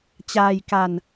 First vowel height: low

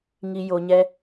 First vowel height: high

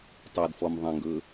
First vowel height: mid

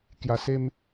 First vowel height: low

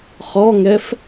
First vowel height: mid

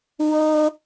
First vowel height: mid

